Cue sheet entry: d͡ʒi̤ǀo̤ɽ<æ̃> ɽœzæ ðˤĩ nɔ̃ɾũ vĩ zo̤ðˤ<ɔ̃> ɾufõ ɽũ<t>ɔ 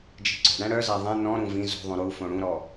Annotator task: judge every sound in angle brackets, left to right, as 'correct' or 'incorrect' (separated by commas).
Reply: correct, incorrect, incorrect